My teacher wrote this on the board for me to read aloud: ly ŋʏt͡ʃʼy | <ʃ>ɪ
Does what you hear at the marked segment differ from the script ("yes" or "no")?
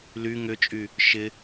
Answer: no